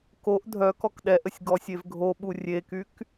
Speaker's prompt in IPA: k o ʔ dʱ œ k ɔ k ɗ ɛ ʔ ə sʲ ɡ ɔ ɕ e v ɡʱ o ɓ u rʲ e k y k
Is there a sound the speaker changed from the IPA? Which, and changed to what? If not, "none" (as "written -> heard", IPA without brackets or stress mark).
ɕ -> sʲ